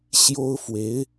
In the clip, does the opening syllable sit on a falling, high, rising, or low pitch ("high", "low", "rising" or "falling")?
high